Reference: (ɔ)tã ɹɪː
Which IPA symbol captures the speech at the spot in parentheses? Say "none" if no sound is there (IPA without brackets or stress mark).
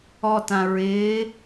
ɔ